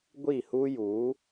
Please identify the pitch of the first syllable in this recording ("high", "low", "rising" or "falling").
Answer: falling